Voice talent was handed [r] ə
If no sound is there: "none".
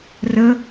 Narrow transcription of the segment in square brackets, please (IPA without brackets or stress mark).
r